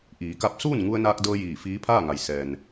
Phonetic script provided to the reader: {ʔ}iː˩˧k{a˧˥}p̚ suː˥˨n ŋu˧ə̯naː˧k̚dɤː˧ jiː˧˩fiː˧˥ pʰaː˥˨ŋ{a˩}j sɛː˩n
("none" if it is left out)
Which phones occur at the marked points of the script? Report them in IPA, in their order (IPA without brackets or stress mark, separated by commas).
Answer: ʔ, a˧˥, a˩